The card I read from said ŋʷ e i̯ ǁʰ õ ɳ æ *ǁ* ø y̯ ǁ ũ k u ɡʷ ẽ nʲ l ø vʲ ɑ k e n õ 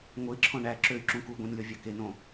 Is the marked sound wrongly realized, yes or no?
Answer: no